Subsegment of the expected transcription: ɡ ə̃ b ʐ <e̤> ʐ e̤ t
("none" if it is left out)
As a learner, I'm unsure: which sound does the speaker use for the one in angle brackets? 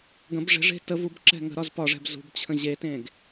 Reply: e̤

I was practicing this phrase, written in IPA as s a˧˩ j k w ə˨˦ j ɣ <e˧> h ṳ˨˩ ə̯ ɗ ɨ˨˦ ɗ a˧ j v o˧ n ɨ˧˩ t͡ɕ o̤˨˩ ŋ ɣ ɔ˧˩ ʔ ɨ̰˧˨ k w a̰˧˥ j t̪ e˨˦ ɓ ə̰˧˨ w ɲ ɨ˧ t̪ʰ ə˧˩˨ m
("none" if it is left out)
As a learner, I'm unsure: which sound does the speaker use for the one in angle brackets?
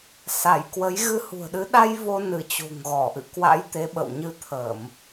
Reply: ɨ˧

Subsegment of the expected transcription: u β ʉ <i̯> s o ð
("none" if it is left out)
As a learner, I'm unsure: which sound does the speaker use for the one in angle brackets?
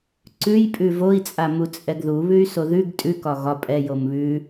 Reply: y̯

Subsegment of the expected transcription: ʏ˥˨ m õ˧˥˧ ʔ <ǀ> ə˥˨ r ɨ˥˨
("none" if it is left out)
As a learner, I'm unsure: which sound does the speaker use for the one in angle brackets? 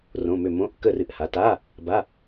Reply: k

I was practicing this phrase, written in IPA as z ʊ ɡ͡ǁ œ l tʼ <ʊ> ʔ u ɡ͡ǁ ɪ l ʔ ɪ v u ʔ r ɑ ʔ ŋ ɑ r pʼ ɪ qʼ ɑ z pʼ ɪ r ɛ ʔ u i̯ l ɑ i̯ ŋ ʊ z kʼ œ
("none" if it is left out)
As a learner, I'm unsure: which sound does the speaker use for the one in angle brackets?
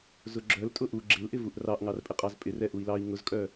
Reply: ʊ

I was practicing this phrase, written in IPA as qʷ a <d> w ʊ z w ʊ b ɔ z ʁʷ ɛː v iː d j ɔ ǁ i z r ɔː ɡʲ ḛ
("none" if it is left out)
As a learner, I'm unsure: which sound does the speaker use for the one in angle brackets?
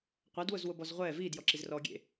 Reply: d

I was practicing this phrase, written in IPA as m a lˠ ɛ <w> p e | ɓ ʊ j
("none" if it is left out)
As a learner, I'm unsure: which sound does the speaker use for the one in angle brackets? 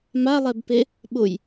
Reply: b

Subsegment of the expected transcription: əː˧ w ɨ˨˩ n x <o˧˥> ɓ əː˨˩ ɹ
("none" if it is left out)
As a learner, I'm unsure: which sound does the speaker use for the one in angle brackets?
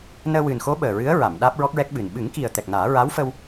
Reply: o˧˥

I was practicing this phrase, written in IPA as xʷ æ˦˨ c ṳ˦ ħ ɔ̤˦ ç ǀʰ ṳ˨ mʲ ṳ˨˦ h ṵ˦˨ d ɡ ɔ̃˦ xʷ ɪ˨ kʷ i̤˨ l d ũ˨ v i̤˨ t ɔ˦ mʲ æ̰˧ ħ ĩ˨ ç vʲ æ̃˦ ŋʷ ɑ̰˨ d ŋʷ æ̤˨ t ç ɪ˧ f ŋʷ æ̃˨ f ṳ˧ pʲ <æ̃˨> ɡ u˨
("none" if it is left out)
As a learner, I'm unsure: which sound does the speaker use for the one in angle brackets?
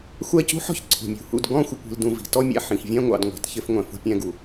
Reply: æ̃˧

